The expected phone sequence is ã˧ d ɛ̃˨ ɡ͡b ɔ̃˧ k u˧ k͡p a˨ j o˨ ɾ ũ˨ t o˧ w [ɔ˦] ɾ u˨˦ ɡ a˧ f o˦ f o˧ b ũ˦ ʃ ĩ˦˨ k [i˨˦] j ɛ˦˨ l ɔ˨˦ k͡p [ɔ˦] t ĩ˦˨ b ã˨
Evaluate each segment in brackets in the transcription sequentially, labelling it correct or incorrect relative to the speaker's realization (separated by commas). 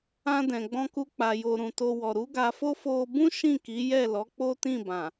incorrect, correct, incorrect